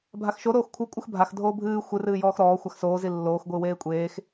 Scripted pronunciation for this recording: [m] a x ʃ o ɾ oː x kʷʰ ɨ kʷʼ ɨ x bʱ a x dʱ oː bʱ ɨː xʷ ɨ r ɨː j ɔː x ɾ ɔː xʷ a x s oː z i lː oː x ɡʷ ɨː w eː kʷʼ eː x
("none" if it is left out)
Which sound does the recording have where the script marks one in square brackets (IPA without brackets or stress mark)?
bʱ